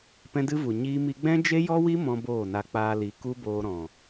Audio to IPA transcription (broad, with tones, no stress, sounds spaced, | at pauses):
p ɛ̃˦ d ɨ˦ v u˨ ɲ iː˦ m i˦ ɡ͡b ɛ̃˦ d͡ʒ e˦ j ɔ˦ w i˦ m ɔ̃˦ b oː˦˨ n a˧ k͡p aː˧ l i˨ k u˦ b oː˧ ɾ ɔ̃˨